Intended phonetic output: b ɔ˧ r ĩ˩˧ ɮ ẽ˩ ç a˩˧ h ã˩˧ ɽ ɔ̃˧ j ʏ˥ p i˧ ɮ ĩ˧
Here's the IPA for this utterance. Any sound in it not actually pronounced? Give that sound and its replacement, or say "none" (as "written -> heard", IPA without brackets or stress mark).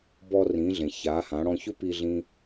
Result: j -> ç